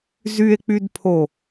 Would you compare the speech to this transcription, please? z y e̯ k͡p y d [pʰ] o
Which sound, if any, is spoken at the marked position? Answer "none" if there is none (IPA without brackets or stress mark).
pʰ